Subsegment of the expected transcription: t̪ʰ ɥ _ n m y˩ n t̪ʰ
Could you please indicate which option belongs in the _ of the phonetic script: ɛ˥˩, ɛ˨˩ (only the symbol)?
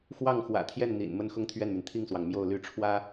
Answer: ɛ˥˩